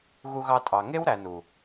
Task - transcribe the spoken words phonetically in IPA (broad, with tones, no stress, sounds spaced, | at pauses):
ɣ u˧ ɣ ɑ˧ tʼ ɑ˨ ŋ e˦ w ɾ æ˨ n u˨